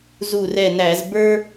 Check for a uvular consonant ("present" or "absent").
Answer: absent